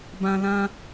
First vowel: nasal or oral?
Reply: nasal